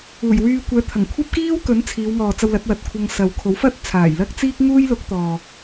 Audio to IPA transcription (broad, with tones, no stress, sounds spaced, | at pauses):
uː˨˩ j w yː˧ kʷ ɛː˨˥ t̪ʰ ɐ˨˩ ŋ kʷʰ ɐ˥ p̚ k iː˥ w k ɵ˨˥ n t͡sʰ iː˨˧ w ŋ ɔː˨ t͡s ɐ˧ w l ɐ˨˥ t̚ w ɐ˨ t̚ kʷʰ ɐ˧ ŋ s ɐ˨ w kʰ o˨˥ w f ɐ˥ t̚ t͡sʰ aː˨˩ j l ɐ˥ k̚ t͡s iː˥ k̚ ŋ uː˥ j l ʊ˨˥ k̚ t̪ ɔː˨